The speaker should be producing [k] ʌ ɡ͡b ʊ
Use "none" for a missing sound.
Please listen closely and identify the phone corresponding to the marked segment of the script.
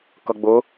k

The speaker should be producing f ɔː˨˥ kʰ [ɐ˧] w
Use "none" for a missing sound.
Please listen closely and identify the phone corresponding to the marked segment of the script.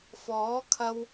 ɐ˧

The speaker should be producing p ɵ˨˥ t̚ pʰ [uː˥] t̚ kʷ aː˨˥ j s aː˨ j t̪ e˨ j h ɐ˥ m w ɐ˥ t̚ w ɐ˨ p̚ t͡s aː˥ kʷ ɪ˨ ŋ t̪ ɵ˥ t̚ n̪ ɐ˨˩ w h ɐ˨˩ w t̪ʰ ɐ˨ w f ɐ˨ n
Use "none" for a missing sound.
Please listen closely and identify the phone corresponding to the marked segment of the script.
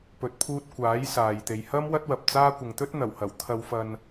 uː˧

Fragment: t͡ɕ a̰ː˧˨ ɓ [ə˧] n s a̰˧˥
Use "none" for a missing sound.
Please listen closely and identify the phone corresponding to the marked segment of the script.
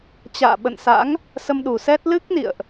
ə̰˧˨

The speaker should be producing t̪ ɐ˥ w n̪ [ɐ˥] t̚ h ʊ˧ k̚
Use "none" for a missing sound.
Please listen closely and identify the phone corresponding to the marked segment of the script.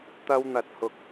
ɐ˧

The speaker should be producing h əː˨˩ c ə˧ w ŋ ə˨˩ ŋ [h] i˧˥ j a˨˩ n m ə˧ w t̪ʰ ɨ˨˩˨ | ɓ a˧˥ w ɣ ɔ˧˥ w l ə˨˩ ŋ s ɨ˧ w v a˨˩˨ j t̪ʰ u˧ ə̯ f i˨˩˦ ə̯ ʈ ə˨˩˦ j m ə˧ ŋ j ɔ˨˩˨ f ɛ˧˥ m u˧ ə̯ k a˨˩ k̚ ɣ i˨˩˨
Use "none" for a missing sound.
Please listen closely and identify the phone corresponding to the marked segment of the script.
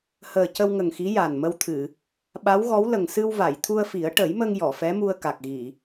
x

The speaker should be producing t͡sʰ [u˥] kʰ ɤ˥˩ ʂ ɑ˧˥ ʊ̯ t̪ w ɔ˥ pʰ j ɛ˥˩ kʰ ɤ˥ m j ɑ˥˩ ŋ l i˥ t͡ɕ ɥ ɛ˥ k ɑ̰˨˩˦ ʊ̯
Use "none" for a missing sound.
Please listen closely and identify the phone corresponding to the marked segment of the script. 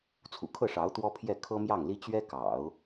ṵ˨˩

